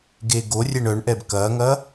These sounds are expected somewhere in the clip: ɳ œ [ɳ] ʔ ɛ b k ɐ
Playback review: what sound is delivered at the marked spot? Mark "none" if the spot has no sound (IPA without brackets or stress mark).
ɳ